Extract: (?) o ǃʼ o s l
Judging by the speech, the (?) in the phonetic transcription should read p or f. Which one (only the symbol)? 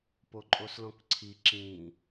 p